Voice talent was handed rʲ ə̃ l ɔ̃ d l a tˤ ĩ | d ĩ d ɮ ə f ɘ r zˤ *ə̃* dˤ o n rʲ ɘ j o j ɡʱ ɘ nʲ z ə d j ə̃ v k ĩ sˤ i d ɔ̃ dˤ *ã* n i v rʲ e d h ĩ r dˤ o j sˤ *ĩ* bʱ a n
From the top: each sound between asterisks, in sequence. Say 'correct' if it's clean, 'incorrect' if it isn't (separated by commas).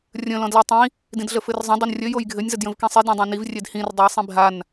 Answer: correct, correct, correct